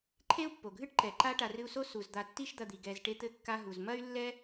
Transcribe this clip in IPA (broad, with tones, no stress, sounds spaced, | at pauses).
ǃʰ e˥ u̯ pː o˩ ɡʱ ɨ˥ ʈ ǃ ɛ˩ ǃ a˥ ʈ a˨ r ɨ˦ u̯ s o˥ s u˩ z d̪ a˨ tː i˦ ʃ d̪ ɐ˨ d̪ i˩ ɡ ɛ˩ z ʈ e˦ t̪ ɘ˦ kː a˦ ɦ u˩ z m ɐ˥ y̯ lː ɛ˥